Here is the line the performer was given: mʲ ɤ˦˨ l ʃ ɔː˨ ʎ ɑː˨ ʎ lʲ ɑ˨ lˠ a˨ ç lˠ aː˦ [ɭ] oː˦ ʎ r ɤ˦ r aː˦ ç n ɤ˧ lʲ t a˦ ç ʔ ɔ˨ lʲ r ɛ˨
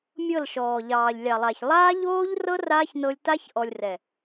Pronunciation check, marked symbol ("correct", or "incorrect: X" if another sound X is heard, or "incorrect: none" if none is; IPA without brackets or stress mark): incorrect: ʎ